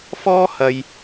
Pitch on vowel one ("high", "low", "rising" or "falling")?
high